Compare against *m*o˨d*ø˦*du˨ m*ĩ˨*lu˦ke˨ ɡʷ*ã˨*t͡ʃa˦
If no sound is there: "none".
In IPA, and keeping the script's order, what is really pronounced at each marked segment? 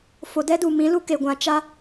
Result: f, ɛ˦, ĩ˨˦, ã˨

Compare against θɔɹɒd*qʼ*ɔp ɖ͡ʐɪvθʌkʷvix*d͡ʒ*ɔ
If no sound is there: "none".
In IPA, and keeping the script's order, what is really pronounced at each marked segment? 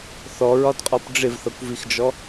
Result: qʼ, d͡ʒ

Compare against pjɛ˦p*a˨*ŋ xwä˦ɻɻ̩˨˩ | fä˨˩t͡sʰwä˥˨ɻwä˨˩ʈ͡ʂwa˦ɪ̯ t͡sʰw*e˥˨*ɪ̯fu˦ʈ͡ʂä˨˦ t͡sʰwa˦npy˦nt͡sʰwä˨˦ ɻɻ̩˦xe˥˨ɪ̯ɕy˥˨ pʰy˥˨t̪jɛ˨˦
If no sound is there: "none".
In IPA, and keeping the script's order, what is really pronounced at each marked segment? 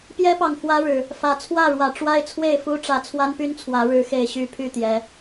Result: ɑ˨, e˥˨

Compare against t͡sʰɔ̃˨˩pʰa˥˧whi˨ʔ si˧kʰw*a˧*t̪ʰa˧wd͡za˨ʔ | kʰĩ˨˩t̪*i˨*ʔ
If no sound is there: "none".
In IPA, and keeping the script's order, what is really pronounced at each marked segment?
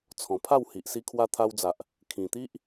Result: a˧, i˦

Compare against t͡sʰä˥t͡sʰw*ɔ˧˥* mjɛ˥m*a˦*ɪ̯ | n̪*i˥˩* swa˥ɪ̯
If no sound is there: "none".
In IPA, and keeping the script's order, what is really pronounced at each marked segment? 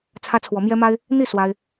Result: ɔ˧˥, a˥, i˥˩

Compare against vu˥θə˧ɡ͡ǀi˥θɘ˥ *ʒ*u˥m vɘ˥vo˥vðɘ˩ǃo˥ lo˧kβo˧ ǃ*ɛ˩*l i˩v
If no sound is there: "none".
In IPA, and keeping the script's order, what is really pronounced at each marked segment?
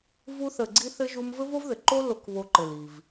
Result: ʒ, ɘ˩

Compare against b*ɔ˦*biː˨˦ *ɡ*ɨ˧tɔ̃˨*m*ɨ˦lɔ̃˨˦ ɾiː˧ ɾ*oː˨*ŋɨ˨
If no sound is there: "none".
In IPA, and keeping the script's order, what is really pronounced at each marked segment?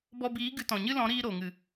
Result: ɔ˧, ɡ, ɲ, o˨

